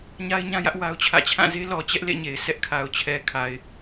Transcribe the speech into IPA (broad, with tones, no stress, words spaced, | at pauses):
ɲa˦ɪ̯ɲã˦jä˦ʔ wa˦ʊ̯t͡ɕʰä̰˦˨ t͡ɕʰã˦˨ze˦ lɔ˨t͡ɕɛ˦ʔ lḛ˦˨ɲe˨ɪ̯ sʰɛ˦ʔkʰa˨ʊ̯t͡ɕʰɛ˨kʰa˨ɪ̯